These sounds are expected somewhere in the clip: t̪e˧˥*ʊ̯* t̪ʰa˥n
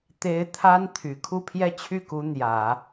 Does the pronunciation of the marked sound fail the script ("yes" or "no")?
yes